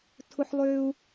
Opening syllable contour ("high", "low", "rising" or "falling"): high